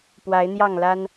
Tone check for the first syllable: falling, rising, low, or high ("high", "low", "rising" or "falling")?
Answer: rising